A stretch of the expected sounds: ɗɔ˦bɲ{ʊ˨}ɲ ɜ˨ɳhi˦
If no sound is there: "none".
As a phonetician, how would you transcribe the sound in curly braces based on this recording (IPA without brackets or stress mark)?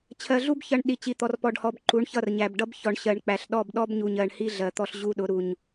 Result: u˨